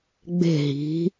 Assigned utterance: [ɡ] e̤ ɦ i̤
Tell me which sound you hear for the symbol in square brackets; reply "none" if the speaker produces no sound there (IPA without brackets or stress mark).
ɡ͡b